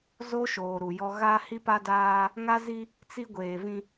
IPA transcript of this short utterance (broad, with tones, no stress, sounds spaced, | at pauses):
z o˦ ʃ oː˨ ɾ u˨ j ɔ˦ ɣ a˦ h i˦ p a˦ d aː˦ | ŋ a˦ z i˦ | t͡s i˦ ɡʷ eː˨ v ĩ˦